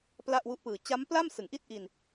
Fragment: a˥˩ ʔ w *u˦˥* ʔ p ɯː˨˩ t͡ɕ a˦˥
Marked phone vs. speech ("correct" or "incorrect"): correct